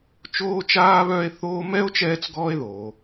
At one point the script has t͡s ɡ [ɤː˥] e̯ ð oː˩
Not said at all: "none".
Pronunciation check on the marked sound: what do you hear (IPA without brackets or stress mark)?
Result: ɔː˥